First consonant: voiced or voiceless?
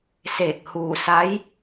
voiceless